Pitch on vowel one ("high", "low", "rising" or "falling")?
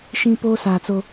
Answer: high